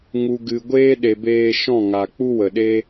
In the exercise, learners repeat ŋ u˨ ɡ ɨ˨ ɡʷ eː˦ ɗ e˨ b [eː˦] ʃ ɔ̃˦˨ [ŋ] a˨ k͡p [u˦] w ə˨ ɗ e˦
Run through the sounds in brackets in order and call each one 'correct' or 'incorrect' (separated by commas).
incorrect, correct, correct